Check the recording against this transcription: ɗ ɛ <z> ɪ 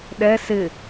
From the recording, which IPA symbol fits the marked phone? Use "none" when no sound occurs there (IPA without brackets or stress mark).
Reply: s